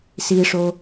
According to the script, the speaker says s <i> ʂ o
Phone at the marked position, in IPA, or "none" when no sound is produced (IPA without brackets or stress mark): i